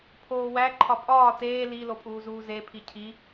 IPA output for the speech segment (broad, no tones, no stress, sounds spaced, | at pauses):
pʰ oː w æ ǃʰ ɒ pʼ ɒː t eː l i l o pʼ uː z uː z e pʰ i cʰ i